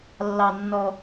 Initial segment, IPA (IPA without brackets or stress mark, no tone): lː